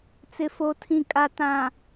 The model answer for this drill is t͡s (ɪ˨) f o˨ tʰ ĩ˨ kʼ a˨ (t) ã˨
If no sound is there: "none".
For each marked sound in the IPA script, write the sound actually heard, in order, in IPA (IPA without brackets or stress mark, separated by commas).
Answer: ɪ˨, t